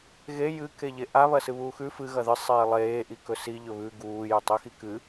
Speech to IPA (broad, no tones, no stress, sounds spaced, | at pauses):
ɣ e j ɨ k e ʎ e ʔ a β ɐ s ɨ β uː x ʉ f ɨ ɣ ɐ ð ɨ sˤ eː lˠ eː ʔ i k ɵ s i ʎ ɵ β ʉ ɡ uː j ʉ tˤ i x i k ɨ